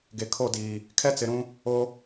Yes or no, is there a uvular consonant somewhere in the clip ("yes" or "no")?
no